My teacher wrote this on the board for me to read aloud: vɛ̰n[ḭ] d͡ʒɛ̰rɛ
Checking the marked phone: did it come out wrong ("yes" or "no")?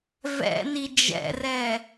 yes